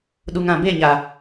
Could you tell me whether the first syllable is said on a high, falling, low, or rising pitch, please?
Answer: low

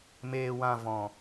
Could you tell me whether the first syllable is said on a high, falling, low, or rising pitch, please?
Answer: low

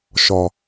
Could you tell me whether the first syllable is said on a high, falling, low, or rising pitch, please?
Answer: low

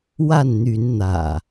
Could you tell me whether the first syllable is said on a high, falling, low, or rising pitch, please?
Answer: falling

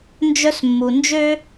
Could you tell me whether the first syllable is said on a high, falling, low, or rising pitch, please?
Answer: high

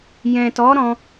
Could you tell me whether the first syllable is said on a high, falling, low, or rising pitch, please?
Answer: low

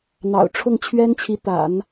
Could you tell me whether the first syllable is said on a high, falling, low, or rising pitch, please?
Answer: low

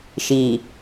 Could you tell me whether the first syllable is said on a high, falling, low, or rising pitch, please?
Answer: low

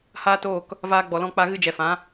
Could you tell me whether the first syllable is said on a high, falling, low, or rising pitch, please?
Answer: high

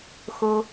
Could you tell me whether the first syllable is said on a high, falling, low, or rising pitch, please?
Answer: low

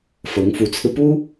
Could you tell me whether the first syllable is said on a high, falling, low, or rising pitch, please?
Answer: rising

